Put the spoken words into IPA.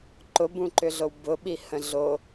ǃ ʊ b ũ ǃ ʏ ɮ o w b ʊ ɓ i h ə̃ ɮ o

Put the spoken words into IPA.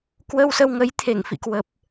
k w ə˧ w s ə˧ w ŋ ə˨˦ j t̪ʰ e˧˩ ŋ f ḭ˧˨ k w ə˨˩ p̚

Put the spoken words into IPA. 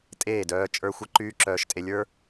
tʼ eː˦˨ d œː˧ t͡ʃʼ ə˞˧ xʷ ə˧ ǃ yː˦ ǁ œː˧ ʃ tʼ e˧ lʲ ə˞˦

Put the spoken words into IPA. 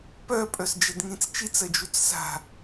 p œ pʼ œ s d͡ʒ ɛ d ŋ ĩ t͡s t͡ʃ i t͡s ɜ d͡ʒ u t͡s s a̤

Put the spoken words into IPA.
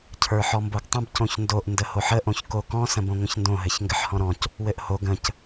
cʰ ə˞ ħ ɔ m b o ɡ tˤ ə̃ b c õ ç n d o ʔ n d ə h o ħ ə ʔ õ ç k o k ɔ̃ s ə̃ b õ ŋʷ ə̃ ç n d õ ɦ ɘ ç ŋ ɡ ɘ ħ h ɔ̃ ɾ ɔ̃ c | w ɘ ʔ h o ɡ ə̃ c

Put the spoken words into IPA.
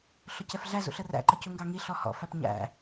ɬ ʊ c ɛ f ɮ æ z ṵ ɬ ə r æ̰ ǃ ə c u ŋ ɡ ɑ ŋ i ɬ ɔ h ɔ̰ f æ p ɲ æ̰

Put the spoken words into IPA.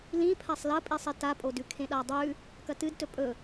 l ĩ pʰ a sˤ l ɐ pʼ i sˤ i t a pʼ o d ʉ kʰ ẽ ɗ a dˤ ʉ | k ɐ t ɨ d t ɵ pʼ ɵ

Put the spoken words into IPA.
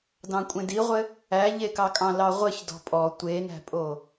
d ɑ̃ kʷʼ ẽ d i ʁʷ ɘ | æ ʎ e k ɑ kʼ ɑ̃ l ɑ ʁʷ ɘ ç d ɔ̤ pʼ ɔ tʷ e n æ̤ pʼ o

